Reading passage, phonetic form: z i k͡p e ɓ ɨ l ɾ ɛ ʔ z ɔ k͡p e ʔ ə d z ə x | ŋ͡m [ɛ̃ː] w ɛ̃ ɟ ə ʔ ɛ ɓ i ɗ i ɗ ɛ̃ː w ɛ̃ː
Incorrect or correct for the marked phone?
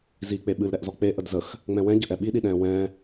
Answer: incorrect: ɛ̃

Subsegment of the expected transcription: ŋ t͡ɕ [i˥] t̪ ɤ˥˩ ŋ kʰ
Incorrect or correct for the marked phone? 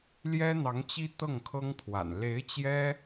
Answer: correct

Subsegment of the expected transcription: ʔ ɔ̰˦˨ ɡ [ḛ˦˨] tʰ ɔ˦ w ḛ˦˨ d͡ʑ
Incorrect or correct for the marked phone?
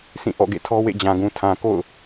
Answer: correct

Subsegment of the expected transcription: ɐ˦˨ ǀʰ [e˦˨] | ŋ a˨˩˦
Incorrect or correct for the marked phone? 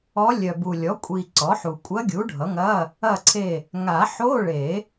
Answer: correct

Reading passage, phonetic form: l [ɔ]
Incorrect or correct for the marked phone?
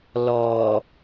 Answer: correct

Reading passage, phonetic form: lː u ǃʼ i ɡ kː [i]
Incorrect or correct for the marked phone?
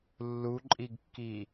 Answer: correct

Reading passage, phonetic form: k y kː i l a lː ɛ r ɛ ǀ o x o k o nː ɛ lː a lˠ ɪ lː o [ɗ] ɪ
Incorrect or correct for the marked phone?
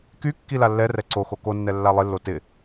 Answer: incorrect: t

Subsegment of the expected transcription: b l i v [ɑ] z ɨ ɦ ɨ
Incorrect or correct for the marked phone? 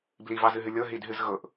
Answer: correct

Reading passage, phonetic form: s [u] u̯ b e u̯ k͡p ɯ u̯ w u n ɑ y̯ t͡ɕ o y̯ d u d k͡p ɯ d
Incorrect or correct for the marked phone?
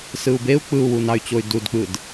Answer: incorrect: ɯ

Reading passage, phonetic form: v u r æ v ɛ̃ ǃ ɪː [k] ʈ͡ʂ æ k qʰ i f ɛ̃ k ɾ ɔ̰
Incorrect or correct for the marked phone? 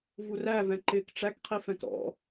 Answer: correct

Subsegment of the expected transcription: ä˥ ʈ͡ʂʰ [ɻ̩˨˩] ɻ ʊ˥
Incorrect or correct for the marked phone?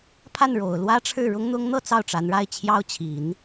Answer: incorrect: ɻ̩˥˩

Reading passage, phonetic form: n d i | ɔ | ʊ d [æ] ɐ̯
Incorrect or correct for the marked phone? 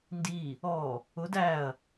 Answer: correct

